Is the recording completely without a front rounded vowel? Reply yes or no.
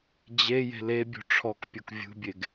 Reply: yes